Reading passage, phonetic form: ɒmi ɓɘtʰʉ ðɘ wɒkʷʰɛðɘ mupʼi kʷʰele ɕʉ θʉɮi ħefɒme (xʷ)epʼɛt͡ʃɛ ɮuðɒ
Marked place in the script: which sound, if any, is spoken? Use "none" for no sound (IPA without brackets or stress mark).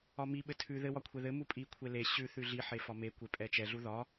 kʷ